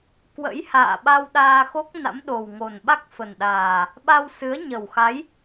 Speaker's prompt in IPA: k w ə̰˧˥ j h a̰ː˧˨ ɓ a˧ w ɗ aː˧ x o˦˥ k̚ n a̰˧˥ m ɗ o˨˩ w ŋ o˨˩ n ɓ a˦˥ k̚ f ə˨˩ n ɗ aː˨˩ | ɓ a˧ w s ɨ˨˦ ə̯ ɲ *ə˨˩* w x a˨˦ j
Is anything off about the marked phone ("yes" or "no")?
no